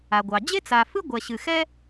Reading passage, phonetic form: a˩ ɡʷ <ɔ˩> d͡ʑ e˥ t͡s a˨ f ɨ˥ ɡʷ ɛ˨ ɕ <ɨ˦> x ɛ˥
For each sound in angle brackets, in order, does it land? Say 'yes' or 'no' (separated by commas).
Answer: no, no